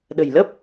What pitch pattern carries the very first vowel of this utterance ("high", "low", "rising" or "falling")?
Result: low